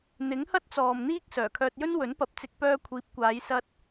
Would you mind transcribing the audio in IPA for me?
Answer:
n̪ ɪ˨˥ ŋ h ɐ˥ t̚ t͡s ɔː˨ m n̪ iː˧ k̚ s œː˨˩ kʰ œː˧ t̚ j ɵ˥ n w ɵ˨˥ n p ɐ˧ p̚ t͡s ɪ˧ k̚ p œː˧ kʷʰ iː˨˥ p̚ kʷ aː˨˧ j s ɐ˧ t̚

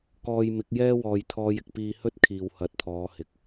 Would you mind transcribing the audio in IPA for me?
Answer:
k ɔː˧ j m ɪ˨˥ k̚ j ɛː˥ w ɔː˨ j t̪ʰ ɔː˧ j ɪ˨ k̚ p iː˧ h ɵ˥ t̚ kʰ iː˨ w h ɐ˨˥ t̚ t̪ʰ ɔː˨˧ h ɪ˨˥ k̚

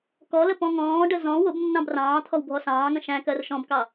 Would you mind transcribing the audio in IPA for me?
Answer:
k ɔ l ə p ɔ̃ ŋ ɔ̃ː ɖ ə z ɔ̃ w ʊ b nː ɑ̃ b r ɑ̃ː t̪ʰ ɔ w bʱ ɔ s ɑ̃ː ŋ ə̃ ʃ æ̃ k ɜ r ʃ ɔ̃ b k ɑ

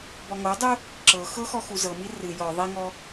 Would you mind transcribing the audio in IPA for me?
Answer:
b ɔ ŋ o dˤ u | ǁ ɤ x ɤ x ɔ x u z ɤ m i r ɨ j ɔ ðˤ i ŋ ɔ

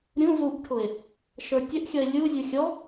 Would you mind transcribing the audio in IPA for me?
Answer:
ɾʲ ũ z u ʔ ʈʰ ʊ e̯ | ʃ ə˞ tʲ ə ʔ xʲ ʌ e̯ lʲ u zʲ u xʲ ɔ

